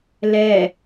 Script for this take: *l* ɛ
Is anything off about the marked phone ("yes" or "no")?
no